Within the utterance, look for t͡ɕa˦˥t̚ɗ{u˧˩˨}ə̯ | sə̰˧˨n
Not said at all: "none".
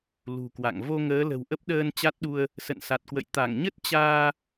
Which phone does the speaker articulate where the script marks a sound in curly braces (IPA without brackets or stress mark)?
u˧